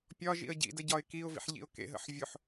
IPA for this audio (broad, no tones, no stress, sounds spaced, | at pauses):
pʲ ɒ ʒ ḭ ə̯ ɟ ḭ d ə ɟ ɒ ɪ̯ k i ʊ̯ v ḭ ħ ʎ ḭ ʊ̯ k ḛ ɦ ə̰ ħ vʲ ʊ ħ